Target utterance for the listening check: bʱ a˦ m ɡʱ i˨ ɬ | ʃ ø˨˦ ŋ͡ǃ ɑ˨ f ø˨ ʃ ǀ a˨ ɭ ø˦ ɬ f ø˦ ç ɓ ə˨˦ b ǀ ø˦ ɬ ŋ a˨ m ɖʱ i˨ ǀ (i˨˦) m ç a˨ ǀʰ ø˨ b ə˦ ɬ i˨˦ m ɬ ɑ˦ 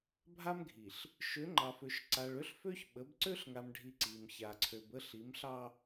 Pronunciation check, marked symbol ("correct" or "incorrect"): incorrect